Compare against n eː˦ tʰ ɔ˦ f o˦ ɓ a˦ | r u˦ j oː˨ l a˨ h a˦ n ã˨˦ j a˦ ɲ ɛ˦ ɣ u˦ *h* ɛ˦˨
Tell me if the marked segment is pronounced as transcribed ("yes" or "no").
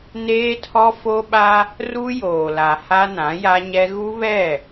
no